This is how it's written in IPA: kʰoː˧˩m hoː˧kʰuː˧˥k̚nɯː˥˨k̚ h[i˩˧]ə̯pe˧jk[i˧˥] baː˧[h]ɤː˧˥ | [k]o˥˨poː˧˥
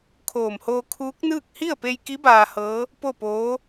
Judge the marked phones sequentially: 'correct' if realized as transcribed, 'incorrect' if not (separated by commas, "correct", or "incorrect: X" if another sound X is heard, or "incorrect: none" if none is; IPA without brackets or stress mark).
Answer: incorrect: i˥˨, correct, correct, incorrect: p